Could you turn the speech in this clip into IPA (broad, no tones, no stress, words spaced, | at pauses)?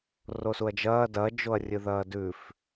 rosuɐ̯d͡ʒɐː dɐ d͡ʒoɐ̯rʲɨðɐːdʉf